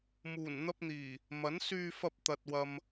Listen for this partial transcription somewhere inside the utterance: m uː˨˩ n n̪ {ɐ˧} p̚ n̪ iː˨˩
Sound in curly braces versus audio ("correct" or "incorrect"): correct